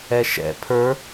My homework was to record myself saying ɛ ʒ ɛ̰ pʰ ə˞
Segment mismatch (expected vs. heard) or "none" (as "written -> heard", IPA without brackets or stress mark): ʒ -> ʃ